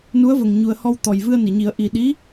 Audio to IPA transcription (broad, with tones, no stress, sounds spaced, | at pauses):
n u˧˥ ə̯ v ə˨˩ ŋ ɲ u˨˩ ə̯ h ɔ˧ w t̪ ɔ˨˩ j v ɨ˧ ə̯ n i˨˩˨ ɲ i˨˩˦ ə̯ ʔ i˨˩ ɗ i˧˥